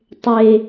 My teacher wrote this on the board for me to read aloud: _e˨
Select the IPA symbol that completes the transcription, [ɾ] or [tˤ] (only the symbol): tˤ